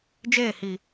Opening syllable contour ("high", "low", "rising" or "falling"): falling